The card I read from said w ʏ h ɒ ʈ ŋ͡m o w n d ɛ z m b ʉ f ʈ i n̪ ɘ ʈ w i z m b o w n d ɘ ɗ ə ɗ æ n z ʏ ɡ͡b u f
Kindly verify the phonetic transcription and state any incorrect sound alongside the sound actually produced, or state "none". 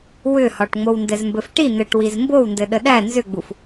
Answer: ʉ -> ɘ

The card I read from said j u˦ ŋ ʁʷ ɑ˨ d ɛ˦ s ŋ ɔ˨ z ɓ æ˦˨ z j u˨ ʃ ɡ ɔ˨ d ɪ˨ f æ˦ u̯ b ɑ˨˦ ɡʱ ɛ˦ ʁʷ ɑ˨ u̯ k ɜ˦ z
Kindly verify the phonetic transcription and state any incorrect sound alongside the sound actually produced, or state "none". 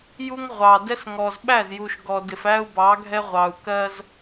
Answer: none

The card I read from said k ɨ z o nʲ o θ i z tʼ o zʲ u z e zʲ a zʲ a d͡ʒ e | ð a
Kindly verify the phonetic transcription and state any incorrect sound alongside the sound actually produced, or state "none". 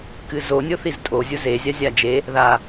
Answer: none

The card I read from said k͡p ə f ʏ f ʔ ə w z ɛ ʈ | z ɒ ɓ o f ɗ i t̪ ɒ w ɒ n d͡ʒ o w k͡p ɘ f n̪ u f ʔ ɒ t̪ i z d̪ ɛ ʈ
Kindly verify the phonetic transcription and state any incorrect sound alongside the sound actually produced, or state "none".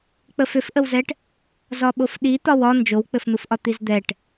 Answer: none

